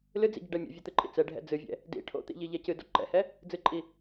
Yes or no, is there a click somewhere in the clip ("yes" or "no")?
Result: yes